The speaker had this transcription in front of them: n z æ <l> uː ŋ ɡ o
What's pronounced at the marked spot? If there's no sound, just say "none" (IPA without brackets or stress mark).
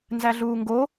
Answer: ɮ